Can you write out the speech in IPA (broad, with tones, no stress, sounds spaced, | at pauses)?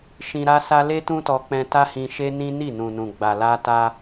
ʃ ĩ˧ ɾ a˦ s a˦ l e˦ t ũ˦ t ɔ˧ k͡p ɛ̃˧ t a˦ h ĩ˧ ʃ e˦ n ĩ˦ n i˦˨ n ũ˨ n ũ˨ ɡ͡b a˨ l a˧ t a˧